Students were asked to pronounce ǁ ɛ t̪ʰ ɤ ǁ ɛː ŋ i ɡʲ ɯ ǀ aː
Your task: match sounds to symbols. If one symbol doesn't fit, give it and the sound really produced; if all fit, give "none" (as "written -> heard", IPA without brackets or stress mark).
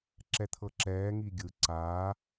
none